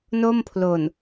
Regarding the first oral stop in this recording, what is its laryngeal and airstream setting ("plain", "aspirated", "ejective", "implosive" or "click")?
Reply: aspirated